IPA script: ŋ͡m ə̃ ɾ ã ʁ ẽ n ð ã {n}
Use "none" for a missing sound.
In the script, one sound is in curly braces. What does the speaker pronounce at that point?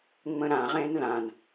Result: n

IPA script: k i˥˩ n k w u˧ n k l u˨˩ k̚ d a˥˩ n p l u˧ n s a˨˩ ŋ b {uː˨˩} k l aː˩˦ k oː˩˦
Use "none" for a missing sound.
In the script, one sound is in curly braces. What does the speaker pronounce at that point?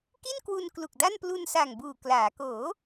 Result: uː˨˩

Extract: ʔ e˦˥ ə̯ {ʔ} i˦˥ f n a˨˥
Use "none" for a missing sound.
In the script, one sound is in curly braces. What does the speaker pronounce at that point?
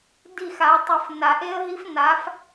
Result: ɦ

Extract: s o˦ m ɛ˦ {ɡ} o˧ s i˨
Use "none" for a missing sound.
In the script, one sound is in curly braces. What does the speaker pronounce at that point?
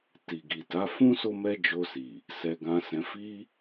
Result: d͡ʒ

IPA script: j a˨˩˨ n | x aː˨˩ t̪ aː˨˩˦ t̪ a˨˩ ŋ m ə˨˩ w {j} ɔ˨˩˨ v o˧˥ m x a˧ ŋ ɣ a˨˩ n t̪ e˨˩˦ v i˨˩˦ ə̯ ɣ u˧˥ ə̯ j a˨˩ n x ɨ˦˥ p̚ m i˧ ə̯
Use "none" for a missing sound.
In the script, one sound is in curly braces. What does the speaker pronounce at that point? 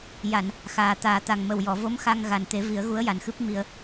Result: j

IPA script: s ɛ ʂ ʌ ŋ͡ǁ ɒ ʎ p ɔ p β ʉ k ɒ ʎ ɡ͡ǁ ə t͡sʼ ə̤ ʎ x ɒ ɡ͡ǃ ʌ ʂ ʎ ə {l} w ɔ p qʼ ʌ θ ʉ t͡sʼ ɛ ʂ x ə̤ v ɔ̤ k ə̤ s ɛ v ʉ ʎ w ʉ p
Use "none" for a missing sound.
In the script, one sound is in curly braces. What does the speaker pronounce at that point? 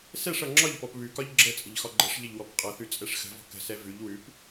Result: ʎ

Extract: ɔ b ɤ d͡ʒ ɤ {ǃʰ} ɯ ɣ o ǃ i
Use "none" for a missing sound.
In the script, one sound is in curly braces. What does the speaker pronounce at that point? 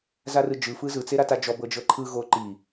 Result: ǃʰ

